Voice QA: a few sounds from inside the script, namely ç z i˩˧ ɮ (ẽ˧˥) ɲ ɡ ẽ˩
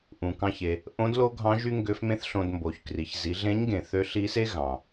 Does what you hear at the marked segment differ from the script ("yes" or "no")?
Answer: no